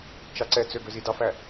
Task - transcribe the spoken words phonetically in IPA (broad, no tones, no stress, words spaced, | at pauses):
t͡ʃɑǀɛt͡sø ɡøzidɑfæ